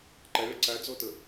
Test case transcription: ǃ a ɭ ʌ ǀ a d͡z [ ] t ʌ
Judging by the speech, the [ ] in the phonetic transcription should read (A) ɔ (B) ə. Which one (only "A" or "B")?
A